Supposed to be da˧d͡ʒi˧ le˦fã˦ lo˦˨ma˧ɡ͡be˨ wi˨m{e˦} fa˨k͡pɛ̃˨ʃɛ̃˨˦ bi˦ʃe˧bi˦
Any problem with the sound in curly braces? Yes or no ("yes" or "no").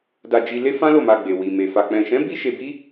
yes